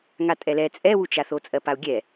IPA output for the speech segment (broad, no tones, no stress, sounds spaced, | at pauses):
ŋ a tʼ ɛ l ɛ t͡sʼ ɛ w u t͡ʃ a θ o t͡sʼ ɜ p a u̯ ɡʲ ɛ